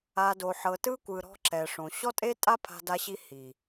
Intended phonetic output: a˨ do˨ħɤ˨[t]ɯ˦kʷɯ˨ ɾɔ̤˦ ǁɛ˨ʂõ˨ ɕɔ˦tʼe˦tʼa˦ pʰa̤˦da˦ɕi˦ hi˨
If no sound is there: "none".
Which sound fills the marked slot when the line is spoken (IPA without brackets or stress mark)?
t